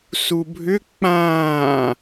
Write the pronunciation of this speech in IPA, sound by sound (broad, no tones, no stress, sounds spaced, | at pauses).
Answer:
s u bʱ ʏ k͡p ãː